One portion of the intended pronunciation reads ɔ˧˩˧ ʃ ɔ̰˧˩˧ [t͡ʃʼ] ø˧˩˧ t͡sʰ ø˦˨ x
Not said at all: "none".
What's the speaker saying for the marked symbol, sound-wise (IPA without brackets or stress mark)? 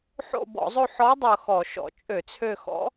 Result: t͡ʃʼ